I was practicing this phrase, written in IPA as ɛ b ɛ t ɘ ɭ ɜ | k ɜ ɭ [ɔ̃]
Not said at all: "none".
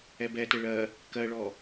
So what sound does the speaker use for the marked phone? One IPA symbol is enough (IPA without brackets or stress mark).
ɔ